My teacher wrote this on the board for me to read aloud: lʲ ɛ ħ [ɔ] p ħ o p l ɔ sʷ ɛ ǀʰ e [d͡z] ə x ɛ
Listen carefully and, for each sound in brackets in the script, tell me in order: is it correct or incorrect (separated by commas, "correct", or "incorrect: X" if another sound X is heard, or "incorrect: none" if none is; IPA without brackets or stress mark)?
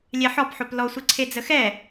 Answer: correct, correct